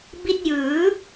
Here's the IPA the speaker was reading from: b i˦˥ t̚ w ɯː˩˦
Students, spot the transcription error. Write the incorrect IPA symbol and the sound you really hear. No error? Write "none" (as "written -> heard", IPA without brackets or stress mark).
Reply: w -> j